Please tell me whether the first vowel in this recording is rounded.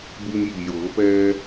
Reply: yes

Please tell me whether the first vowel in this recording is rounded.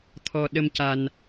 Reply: yes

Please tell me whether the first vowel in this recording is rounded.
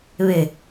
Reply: no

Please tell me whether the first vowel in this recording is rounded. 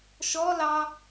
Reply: yes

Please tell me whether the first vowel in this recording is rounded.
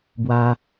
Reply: no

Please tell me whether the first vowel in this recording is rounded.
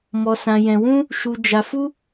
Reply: yes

